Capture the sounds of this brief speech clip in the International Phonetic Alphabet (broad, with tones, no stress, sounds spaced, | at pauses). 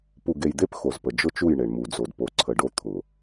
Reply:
p u˨ ɡ e˨ j d̪ e˦ p x o˨ z p ə˨ d͡ʒ ʊ˦ t͡ʃ u˦˨ j ɳ e˨ ɳ m u˨ d͡z o˨ d p o˨ ǀʰ ə˨ ɖ o˦ t̪ʰ ʊ˨